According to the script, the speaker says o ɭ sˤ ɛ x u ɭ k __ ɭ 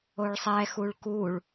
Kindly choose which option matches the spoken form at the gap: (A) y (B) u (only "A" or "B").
B